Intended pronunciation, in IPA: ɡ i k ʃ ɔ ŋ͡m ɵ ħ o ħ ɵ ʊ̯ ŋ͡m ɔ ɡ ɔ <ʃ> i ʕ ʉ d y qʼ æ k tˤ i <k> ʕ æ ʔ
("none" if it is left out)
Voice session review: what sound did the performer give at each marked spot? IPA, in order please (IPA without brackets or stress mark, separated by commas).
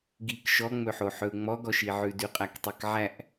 ʃ, k